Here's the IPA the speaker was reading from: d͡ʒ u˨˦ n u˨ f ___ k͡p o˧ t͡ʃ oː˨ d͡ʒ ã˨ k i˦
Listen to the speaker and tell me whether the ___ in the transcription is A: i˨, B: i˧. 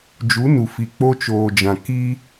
A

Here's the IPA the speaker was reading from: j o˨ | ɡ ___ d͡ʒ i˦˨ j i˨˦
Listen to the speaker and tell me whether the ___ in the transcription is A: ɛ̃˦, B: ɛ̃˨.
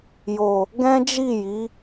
A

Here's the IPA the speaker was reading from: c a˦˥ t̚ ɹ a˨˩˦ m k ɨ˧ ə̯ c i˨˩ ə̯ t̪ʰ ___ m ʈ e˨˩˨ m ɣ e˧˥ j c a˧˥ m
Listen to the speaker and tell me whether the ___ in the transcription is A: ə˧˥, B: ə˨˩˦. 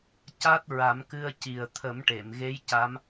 B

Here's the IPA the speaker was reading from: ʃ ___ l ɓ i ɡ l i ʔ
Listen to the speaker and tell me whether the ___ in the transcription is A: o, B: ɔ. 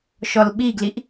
B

